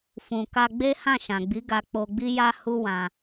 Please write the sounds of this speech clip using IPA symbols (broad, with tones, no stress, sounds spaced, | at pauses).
f ũ˨ k a˧ ɡ͡b e˦ h ã˦˨ ʃ ã˨ ɡ͡b i˨˦ ɡ a˧ k͡p o˧ ɡ͡b i˦ j a˦ h u˦ w ã˧